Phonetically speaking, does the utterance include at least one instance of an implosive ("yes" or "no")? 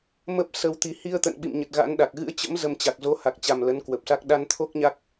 yes